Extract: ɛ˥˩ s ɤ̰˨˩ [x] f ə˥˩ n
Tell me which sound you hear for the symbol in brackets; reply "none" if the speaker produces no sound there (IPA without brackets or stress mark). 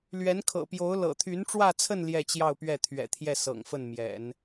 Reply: ŋ